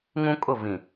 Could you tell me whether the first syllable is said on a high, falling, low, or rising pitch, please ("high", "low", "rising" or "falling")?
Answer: high